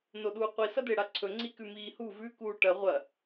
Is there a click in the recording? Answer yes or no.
yes